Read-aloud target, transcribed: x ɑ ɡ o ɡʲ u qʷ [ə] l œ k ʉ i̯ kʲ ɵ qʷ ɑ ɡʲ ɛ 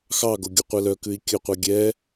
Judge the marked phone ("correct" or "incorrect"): incorrect